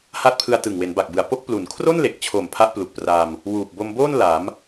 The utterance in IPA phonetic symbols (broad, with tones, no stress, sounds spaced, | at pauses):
h a˦˥ t̚ pʰ ɯ˧ a̯ t ɯ˨˩ ŋ w e˩˦ n b a˨˩ k̚ b ɯ˨˩ a̯ p o˥˩ k̚ p l u˨˩ n kʰ r o˥˩ n l e˨˩ k̚ t͡ɕʰ o˨˩ m pʰ a˦˥ ʔ p l u˨˩ k̚ p r a˧ m | w uː˨˩ p̚ b o˧ m b oː˥˩ n l a˩˦ m